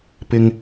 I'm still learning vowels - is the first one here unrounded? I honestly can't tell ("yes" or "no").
yes